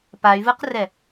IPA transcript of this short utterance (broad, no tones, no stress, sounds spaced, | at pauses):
p a y̯ v ɯ q r ɛ